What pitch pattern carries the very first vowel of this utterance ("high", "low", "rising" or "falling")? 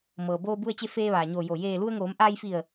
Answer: low